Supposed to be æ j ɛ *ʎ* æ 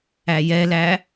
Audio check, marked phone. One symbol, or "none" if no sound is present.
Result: l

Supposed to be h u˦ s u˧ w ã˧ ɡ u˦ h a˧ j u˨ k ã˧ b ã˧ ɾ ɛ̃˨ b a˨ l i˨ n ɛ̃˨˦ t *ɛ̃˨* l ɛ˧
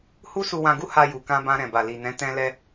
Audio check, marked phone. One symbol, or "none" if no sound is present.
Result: ɛ̃˧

